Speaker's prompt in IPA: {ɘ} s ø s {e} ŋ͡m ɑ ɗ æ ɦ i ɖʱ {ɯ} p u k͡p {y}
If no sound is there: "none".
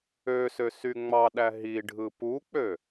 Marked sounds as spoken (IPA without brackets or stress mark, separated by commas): ø, y, ɯ, ø